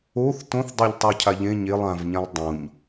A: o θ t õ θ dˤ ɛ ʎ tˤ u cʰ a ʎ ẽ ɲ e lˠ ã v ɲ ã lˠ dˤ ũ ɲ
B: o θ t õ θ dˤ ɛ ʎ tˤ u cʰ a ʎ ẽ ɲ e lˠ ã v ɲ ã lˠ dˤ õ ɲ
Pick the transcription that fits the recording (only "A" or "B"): A